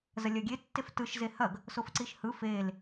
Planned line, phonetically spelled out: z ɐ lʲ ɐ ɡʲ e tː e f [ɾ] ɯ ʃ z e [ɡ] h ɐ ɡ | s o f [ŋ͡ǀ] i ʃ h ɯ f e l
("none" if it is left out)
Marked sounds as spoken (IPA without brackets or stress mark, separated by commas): t, none, ǀ